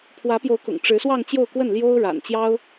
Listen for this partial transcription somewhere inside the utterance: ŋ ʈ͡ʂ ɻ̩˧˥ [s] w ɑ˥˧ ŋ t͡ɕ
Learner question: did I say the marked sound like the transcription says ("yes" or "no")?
yes